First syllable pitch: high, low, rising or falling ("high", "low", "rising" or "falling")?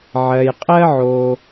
low